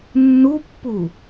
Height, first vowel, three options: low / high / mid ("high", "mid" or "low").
high